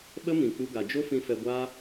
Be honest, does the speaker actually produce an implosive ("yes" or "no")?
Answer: yes